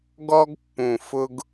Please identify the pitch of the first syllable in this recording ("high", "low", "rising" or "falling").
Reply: high